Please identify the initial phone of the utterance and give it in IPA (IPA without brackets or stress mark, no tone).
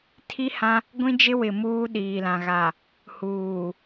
tʰ